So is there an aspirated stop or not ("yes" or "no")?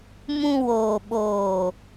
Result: no